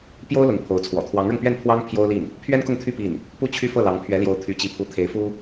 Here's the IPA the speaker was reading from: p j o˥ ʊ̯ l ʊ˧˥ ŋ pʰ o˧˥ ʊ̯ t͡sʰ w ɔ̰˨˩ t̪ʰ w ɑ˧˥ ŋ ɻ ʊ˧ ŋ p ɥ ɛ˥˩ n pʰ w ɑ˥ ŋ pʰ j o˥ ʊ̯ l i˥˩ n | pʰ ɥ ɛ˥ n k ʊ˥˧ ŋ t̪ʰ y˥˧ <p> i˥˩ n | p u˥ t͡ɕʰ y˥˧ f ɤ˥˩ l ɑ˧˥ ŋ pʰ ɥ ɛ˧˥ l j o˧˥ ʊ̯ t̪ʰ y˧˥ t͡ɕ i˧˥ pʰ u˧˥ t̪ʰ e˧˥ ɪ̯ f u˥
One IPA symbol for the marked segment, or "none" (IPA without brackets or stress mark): p